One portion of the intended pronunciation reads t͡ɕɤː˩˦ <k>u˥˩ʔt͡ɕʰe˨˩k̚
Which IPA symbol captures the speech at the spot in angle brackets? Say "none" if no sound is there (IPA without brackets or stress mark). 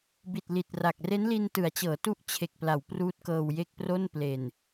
t